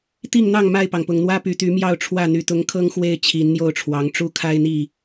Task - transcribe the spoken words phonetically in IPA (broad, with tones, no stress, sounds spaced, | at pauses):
t̪ i˥˨ ŋ n̪ ɑ˥˨ ŋ m a˥˨ ɪ̯ p ɑ˩ ŋ p ʊ˨˩ ŋ n̪ w ä˦ p y˨˦ t̪ y˨˦ m j ɑ˥˨ ʊ̯ ʈ͡ʂʰ w ä˥˨ n̪ y˨˩ t̪ ʊ˨˦ ŋ kʰ ɤ˦ ŋ x w e˥˨ ɪ̯ t͡ɕʰ i˨˦ n n̪ j o˥˨ ʊ̯ ʈ͡ʂʰ w ɑ˨˦ ŋ ʈ͡ʂ u˦ kʰ a˦ ɪ̯ n̪ i˥˨